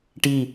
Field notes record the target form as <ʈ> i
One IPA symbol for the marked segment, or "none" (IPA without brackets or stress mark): ʈ